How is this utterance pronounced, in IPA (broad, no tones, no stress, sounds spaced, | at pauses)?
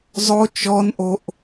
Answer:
zˤ o t͡ʃ ɔ n ʔ o ʔ